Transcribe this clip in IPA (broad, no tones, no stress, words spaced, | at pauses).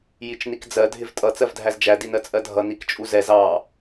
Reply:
jit͡ʃnikd͡zɜ dʱɪvtʼʌ t͡sɜvdʱæzd͡ʒæ dinɜt͡sʼɜdʱʌ nikt͡ʃʼuzɛz ɑ